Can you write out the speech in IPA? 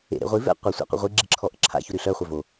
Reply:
ḛ ɾ ḛ ʁʷ i v ɛ̰ qʷ ə sʷ ɛ̰ qʷ ə̰ ʁʷ i ɡ͡ǁ i ǁʰ ɔ ʔ ə̰ ǁʰ a̰ ç u ɾ y ɬ œ χʷ œ v o

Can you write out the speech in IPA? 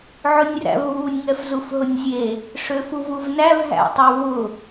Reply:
ʕ ʊ nʲ r æ̰ v β u nʲ ŋ ɛ f z u f ɦ ʊ nʲ zʲ e | ʂ ø f u v u v n æ v ɦ æ̰ tˤ ø v ʊ

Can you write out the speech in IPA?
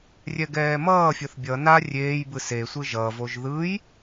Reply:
rʲ ɛ ɡ ɛː m ʌː fʲ ʌ θ bʲ ʌ n a rʲ eː j b ɯ s e sʷ ɯ ʒ ʌ v o ʒ ð ɯ j

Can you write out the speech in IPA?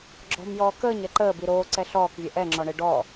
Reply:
ɡ͡ǁ ɔ̤ m j ɔː k əː ɲ ɛ ǃ əː b i ɾ oː ǀ ɛ ɬ ɔː k vʲ ɛ ʔ ɛ ŋ͡ǁ ɔ ɳ e ɖ ɔ

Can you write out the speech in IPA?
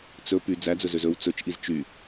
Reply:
t͡s ɵ p y d͡z æ d͡z ɵ z ø z ɵ w t͡s ɵ t͡ʃ ʔ i z t͡ʃ y

